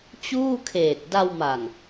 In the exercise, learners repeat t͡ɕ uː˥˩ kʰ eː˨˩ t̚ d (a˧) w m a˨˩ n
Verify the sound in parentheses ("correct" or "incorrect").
correct